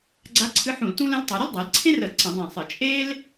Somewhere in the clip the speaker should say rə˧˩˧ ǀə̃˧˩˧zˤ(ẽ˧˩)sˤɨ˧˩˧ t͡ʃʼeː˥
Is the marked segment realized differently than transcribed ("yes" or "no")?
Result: no